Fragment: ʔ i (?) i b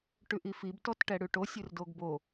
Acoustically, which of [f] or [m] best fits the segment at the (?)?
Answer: f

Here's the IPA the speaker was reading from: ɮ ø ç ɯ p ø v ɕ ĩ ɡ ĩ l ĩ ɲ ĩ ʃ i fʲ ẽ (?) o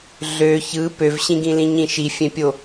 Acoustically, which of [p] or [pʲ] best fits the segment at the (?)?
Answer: pʲ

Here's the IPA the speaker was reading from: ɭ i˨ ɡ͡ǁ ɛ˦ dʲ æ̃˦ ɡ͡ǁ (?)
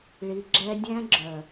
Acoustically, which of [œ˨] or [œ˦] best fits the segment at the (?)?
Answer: œ˨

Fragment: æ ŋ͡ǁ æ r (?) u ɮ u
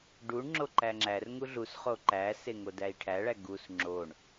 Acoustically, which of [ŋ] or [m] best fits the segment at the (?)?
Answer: ŋ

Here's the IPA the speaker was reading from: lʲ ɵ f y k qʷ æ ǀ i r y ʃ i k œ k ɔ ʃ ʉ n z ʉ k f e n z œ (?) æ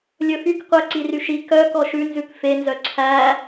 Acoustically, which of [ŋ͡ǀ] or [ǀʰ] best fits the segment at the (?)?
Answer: ǀʰ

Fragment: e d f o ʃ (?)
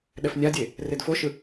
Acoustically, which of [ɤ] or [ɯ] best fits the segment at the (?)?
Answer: ɯ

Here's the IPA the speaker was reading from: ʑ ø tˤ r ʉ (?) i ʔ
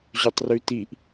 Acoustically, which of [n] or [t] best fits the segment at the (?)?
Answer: t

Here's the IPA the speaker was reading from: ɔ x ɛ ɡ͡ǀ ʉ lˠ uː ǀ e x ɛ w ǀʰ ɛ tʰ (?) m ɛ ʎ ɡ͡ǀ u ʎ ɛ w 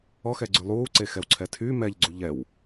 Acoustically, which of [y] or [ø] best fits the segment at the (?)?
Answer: y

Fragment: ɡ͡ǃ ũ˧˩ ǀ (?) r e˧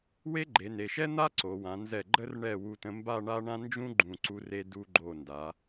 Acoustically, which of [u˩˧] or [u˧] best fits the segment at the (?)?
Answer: u˧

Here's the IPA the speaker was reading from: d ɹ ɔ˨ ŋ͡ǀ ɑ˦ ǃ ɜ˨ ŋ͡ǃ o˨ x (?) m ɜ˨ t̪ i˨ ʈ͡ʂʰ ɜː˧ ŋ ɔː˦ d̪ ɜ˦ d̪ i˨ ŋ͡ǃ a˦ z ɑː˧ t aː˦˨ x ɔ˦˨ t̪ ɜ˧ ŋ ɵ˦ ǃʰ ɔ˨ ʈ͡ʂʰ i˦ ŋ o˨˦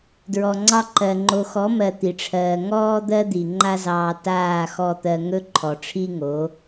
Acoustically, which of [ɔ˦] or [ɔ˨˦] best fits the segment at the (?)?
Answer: ɔ˨˦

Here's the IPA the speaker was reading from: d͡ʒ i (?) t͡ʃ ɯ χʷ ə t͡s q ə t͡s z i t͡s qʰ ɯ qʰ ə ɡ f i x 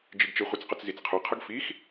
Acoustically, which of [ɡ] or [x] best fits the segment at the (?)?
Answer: ɡ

